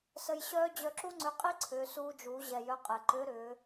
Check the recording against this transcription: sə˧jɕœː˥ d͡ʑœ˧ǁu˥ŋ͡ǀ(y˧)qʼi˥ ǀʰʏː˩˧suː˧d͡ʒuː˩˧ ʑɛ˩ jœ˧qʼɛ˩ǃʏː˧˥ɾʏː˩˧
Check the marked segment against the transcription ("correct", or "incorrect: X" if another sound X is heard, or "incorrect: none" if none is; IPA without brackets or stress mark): incorrect: ʏ˧